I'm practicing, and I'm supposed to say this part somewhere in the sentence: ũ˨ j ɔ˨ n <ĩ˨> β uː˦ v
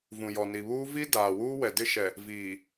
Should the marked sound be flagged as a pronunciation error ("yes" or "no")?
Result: yes